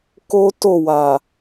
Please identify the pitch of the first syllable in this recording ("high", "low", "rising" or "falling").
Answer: high